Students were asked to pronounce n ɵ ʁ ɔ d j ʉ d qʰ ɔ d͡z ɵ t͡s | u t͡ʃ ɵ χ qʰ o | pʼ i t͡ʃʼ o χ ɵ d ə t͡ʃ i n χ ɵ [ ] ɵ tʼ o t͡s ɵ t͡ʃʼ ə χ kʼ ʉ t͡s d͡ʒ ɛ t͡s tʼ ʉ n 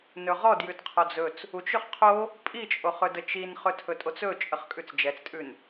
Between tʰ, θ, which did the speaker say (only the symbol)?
tʰ